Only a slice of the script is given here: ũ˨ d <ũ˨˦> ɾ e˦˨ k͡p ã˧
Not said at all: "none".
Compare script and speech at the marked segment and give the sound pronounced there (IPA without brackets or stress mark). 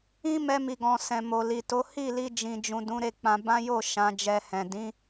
ũ˨˦